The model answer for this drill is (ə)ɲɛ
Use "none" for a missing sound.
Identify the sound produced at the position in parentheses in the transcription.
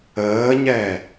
əː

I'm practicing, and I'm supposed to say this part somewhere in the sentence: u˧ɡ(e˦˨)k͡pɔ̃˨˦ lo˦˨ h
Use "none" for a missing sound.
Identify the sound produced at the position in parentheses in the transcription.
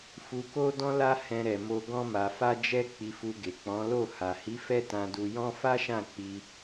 e˨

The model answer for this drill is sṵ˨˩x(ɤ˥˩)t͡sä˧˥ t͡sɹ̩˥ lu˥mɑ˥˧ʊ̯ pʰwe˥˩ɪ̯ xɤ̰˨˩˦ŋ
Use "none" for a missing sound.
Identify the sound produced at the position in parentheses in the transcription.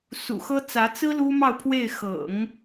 ɤ˥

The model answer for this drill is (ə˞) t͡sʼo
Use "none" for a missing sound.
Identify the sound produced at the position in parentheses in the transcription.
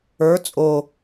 ə˞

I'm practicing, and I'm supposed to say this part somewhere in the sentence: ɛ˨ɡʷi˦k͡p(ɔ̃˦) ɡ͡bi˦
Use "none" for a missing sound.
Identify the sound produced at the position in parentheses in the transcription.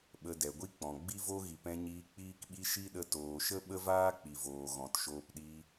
ɔ̃˨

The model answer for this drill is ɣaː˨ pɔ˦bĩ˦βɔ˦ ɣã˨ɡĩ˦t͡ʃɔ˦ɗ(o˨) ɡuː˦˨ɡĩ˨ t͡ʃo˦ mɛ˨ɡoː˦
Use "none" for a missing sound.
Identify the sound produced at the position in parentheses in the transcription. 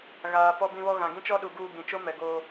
u˨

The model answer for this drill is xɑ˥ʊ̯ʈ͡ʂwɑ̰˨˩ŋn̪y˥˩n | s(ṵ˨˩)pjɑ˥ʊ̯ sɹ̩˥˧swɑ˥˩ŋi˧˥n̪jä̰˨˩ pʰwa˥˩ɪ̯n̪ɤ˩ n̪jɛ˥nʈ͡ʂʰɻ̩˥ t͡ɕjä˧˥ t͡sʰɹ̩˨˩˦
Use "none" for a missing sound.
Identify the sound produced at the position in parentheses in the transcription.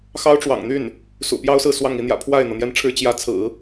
ṵ˨˩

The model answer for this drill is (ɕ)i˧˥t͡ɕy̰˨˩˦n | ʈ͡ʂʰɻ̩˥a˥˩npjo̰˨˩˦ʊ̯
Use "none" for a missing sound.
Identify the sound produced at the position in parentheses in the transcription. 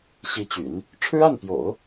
ɕ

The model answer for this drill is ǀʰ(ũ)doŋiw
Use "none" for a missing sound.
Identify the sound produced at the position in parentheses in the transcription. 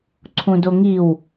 ũ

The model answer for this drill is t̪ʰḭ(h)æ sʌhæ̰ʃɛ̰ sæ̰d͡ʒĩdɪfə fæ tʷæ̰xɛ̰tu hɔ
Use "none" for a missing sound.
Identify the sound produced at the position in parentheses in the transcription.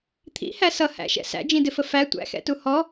h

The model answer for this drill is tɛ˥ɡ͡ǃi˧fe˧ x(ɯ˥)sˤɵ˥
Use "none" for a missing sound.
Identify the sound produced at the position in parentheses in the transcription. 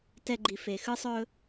ɯ˥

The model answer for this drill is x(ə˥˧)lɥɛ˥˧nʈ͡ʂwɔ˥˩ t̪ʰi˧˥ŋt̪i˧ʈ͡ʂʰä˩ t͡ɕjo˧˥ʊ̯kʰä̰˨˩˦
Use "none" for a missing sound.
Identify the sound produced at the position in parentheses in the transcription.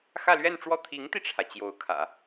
ä˥˧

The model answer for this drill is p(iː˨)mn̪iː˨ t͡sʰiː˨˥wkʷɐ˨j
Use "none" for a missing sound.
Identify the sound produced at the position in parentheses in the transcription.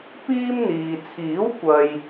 iː˥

